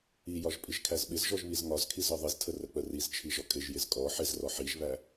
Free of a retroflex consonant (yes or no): yes